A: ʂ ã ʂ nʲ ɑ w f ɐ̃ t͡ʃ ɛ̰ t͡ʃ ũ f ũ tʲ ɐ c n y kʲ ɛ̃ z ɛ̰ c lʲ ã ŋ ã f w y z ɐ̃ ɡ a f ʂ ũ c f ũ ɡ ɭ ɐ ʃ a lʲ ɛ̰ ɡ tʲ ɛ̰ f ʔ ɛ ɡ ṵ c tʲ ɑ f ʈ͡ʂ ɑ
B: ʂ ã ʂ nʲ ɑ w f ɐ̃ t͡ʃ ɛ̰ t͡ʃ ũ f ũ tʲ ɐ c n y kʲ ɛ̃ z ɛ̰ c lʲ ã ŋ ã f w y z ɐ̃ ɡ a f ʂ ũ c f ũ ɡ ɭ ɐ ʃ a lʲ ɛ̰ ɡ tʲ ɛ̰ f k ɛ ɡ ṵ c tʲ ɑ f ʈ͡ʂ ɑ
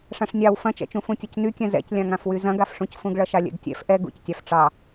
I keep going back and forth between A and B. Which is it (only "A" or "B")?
A